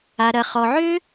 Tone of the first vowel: low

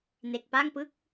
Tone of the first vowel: low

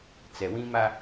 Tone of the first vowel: low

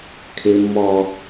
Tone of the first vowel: high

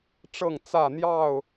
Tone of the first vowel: falling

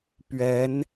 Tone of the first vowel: rising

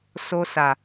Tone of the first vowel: low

